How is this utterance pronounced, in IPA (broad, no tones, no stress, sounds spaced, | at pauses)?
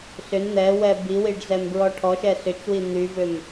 s ʏ n n̪ ɛ w ɛ b i w i ɖ z ɛ m b ɹ ɔ ʈʰ ɔ ʃ ɛ s ʏ t͡ʃ w i n̪ y v ʏ m